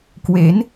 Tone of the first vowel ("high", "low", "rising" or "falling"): rising